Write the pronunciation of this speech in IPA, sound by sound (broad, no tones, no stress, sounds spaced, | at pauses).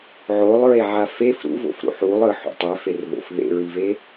ʕ o lˠ ɹ e ʕ a f e f ɾ ṵ v o̰ f ɾ ṵ ħ u lˠ ɯ ħ ṵ tˤ ɛ f e r ð o̰ f ð ḛ ɹ i v e